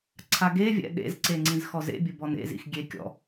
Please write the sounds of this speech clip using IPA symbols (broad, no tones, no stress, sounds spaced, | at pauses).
ǀʰ a ɡ e vʲ ɛ̰ ɗ ḛ z ǀ e ŋ͡ǀ ĩ z x ɔ z ḛ bʲ ɘ b ɔ n ḛ z ḭ x ɡʲ e kʲ ɔ̰